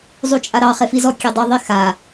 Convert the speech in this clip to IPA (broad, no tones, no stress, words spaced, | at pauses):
zˤut͡ʃʼaɾɑ χefizɔ kʲedˤɐ ðˤixa